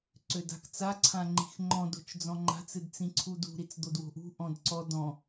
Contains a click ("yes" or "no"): yes